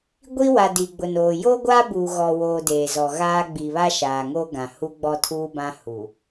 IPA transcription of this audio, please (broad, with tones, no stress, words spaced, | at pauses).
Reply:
ɡʷi˦wa˨ di˨ɡ͡bʊ˨noː˨ joː˦ɡʷaː˦buː˨ ɣɔ˨woː˨ deː˨zɔ˨ɣaː˦ ɡ͡bi˨βa˦ʃaː˨ŋoː˦ ɡã˨hu˦ ɡ͡bɔ˦ tʰuː˦bã˦ hu˨